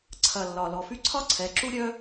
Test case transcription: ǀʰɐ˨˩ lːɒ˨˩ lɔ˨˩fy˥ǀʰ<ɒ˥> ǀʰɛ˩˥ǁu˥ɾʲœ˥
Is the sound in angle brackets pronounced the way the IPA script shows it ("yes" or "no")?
yes